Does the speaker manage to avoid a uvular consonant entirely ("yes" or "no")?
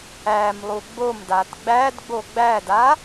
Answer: yes